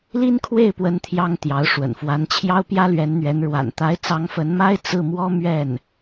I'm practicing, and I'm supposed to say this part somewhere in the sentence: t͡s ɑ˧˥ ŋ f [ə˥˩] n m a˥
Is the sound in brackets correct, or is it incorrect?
incorrect